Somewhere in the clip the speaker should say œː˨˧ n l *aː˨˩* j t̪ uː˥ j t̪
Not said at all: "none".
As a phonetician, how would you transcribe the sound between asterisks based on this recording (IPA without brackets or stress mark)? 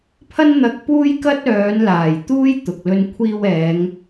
aː˨˩